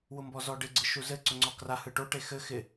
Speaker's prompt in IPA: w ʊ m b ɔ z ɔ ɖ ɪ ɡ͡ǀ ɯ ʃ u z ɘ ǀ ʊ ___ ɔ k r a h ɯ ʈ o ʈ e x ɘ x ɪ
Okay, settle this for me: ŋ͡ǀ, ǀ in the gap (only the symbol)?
ŋ͡ǀ